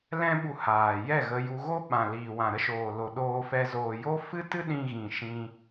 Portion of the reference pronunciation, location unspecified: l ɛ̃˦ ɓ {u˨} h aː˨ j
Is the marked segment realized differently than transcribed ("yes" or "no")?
yes